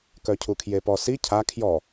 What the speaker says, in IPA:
k œ cʰ u kʰ j e p ɔ s i cʰ a kʰ j ɔ

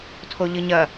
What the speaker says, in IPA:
tʰ o ʎ ɨ ɲ ɐ

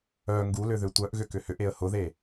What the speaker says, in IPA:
œ ŋ ɡ u l ʏ ð ʏ tʷ œ ʔ ɣ ʏ k ʏ h ʏ ʔ e ə̯ h ʊ ð e

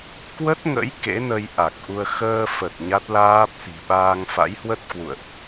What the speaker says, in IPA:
k w ə˦˥ t̚ ŋ ə̰˧˥ j k ḛ˧˥ n ə˧ j ʔ a˨˩ k̚ ʔ u˧ ə̯ x əː˧ f ə˨˩ t̚ ɲ a˦˥ t̚ l aː˦˥ p̚ s i̤˨˩ ɓ aː˧ ŋ f a̰˧˥ j h w ə˦˥ t̚ k w ṵ˧˨ ə̯ ʔ

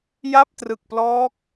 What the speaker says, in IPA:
j a˥˩ p̚ t r ɯ˨˩ k̚ p l ɔː˦˥ k̚

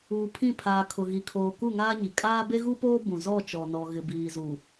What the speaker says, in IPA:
uː˨ pʰ ĩ˦˨ pʰ aː˨ kʰ ʊ˨ ɣ i˨ kʰ oː˨ k u˦˨ ŋ aː˦ ɲ i˨ kʼ aː˦ b e˦ ɣ u˦ p oː˦ b ũ˨ z ɔ˦˨ t͡ʃ ɔ˨ n ɔ˨ ɣ ɪ˨ b iː˨ z u˨

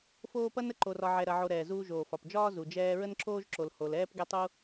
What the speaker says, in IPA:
f oː˦ p ɐ˥ n ə˥ ǃ o˨ r ɒ˨ ʕ ɛ˨ ɾ ɐ˨ ʕ o˨ ɾ ɛː˩ z uː˨ ʒ oː˩ f ɒ˩ p d͡ʒ ɒː˦ z u˨ d͡ʒ ɛː˦ ɹ ə˦ n ǁ oː˦ ʒ ǁ o˨ l h o˨ l ɛː˦ p ɡ ɛ˥ tˤ u˥

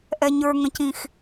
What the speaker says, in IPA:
ʔ ɛ ɲ ə˞ ŋ ə̃ c ĩ x

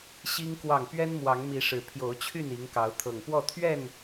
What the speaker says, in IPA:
ɕ i˦ ŋ k w ɑ˥˨ ŋ p ɥ ɛ˦ n m w ɑ˨˦ ŋ m i˨˦ ʂ ɻ̩˨˩ pʰ j o˨˦ ʊ̯ t͡ɕʰ y˥˨ n i˨˦ ŋ k ɑ˨˦ ʊ̯ t̪ʰ ɤ˨˩ ŋ p w ɔ˥˨ t̪ʰ ɥ ɛ˥˨ n

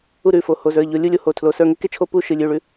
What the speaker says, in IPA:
u˦˨ ɾ ʉ˩˧˩ f o˩˧˩ h o˩˧˩ z ə˞˩˧˩ ʎ o˩˧˩ lʲ u˦˨ lʲ o˦˨ h o˩˧˩ tʰ l o˩˧˩ s ə˞˦˨ ŋ e˥ k e˥ t͡ʃʰ o˦˨ p u˦˨ ʃ ɨ˩˧˩ lʲ ʉ˩˧˩ ɭ ʉ˩˧˩

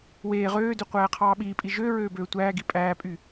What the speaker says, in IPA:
w eː ʁ øː d ø qʷ æː qʰ ɑː ɓ iː pʼ i ʒ ø ɹ øː b øː tʷ æː ɡ i pʼ æː pʼ y

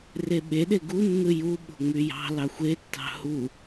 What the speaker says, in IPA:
r e ɓ e ɗ e ɡ u nː ɯ j u ɓ o̤ ŋ͡m y j ɑ̤ l ɑ xʷ e tː ɑ̤ h u

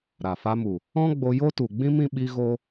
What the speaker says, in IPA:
ɾ a˨ f a˧ m u˨ | ɔ̃˦ ɡ͡b o˧ j o˦ t u˨ ɡ͡b ĩ˦ m ĩ˦ ɓ i˦ ɣ o˦

